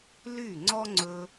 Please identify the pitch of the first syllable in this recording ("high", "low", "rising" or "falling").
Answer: falling